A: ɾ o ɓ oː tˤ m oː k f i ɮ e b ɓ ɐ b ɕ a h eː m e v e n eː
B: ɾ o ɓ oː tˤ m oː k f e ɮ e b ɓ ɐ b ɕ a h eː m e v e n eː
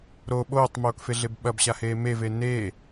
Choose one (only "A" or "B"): B